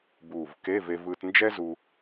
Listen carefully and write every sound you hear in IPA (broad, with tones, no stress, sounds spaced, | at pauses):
b uː˧˩ v k e˧˥˧ v e˧ v ɯː˧ t n d͡ʒ ɛ˥ z u˧